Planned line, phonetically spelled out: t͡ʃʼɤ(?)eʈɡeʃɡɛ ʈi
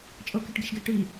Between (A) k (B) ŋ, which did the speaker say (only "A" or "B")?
A